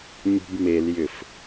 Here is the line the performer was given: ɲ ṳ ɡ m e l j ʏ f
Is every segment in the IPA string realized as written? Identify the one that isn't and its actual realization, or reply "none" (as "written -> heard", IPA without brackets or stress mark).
ɡ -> b